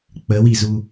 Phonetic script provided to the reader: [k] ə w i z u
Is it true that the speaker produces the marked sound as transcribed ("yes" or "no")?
no